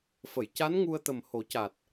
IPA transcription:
f ə˨˩˨ j c a˧˥ n ŋ u˧ ə̯ t̪ ə˨˩ m h o˨˩˦ c a˨˩ t̚

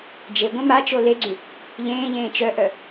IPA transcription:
d͡ʒ e ɡʷ ɛ̃ m a t͡ʃ o l e ɡ͡ǀ y | ʎ ẽː ʎ ẽː t͡ʃ œ ʔ œ

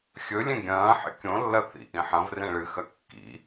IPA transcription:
xʲ ɵ lʲ ẽ ɡʲ ɐ̃ː ħ ḛ kʲ õ lː ɐ θ ḭ ʔ ĩ ħ ɐ̃ v r ẽ ɭ ɨ x ɐ kː ḭ

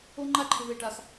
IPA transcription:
o˦ ŋ͡ǃ a˦ ǃʰ ɪ˧ v e˧ ʈ a˧ x

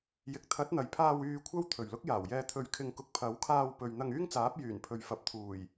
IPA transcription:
j ɪ˨ k̚ t̪ʰ ɐ˨˥ t̚ n̪ ɐ˨ j pʰ aː˧ w yː˨ kʷʰ ɐ˥ w t̪ʰ ɵ˨˩ ɥ l ʊ˥ k̚ j aː˨˩ w j ɛː˧ t̪ʰ ɵ˧ ɥ kʰ ɪ˧ ŋ k ʊ˧ k̚ pʰ ɐ˨˥ w kʰ aː˧ w p ɵ˨ ɥ n̪ ɐ˧ ŋ yː˥ ŋ t͡s aː˨˥ p̚ j yː˨˩ n pʰ ɵ˨ ɥ f ɐ˨ p̚ t̪ʰ uː˨˩ j

